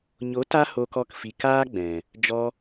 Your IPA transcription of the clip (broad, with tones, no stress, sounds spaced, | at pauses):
ɲ o˨˦ t a˧ h o˨ k ɔ˨ k f i˨ k aː˦ ɡ͡b ɛ̃˨ | d͡ʒ ɔ˧